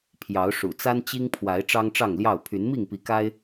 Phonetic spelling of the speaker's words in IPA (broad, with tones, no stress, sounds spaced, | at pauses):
pʰ j ɑ˨˦ ʊ̯ ʂ ṵ˨˩ t͡s a˦ n t͡ɕ i˦ ŋ pʰ w a˨˦ ɪ̯ ʈ͡ʂ ɑ˦ ŋ ʈ͡ʂ ɑ˥˨ ŋ l j ɑ˥˨ ʊ̯ pʰ y˨˦ n m i˥˨ ŋ p i˨˦ k a˦ ɪ̯